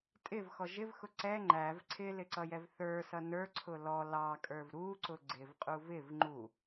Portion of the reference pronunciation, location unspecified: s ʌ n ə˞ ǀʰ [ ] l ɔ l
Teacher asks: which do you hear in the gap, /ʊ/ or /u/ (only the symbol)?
ʊ